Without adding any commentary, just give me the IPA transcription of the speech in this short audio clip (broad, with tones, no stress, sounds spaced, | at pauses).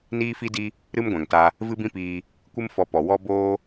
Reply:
n iː˦ f i˦ d i˦ | ɾ ɨ˦ m ɡʷ ɛ̃˨ ŋ t a˧ | v ɨ˦ b ĩ˦ p iː˧ | kʷ ɨ˦ m f ɔ˧ p ɔ˨ w ɔ˦ b oː˦